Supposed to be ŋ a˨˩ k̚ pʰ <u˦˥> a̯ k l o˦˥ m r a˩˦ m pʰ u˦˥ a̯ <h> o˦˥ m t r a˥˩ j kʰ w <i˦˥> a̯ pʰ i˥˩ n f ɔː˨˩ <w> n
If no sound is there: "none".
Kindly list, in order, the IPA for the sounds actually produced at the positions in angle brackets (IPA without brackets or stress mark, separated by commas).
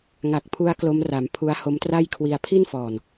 u˦˥, h, i˧, none